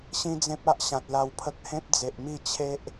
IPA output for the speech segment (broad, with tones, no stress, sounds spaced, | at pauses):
ɕ ĩ˦ d͡z ẽ˦ p̚ a˦ ʔ ɕ ã˨ t̚ l a˧ w pʰ ə˦ k̚ h ẽ˦ p̚ d͡z e˨ ʔ m i˥˧ t͡ɕʰ e˦ ʔ